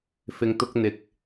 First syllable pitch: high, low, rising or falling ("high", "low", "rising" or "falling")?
low